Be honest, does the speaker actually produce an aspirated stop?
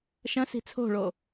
yes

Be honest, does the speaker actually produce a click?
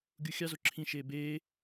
yes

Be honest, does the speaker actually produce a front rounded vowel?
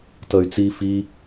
yes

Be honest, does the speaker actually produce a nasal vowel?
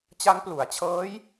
no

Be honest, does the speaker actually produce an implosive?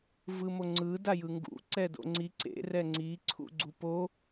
no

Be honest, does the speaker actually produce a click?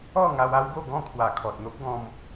no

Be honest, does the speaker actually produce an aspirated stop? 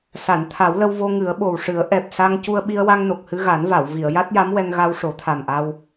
yes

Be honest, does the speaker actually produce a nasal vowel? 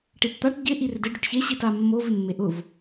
no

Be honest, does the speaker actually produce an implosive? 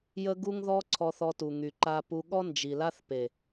yes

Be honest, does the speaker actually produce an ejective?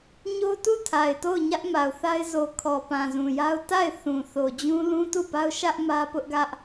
no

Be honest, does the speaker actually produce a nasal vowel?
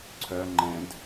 yes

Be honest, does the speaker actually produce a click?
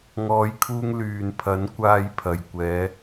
no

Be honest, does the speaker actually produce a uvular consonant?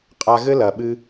yes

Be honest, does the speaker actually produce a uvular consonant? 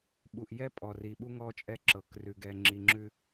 no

